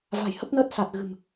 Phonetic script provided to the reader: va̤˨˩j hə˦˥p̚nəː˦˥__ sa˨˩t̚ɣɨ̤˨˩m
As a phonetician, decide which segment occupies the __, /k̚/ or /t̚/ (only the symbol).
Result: t̚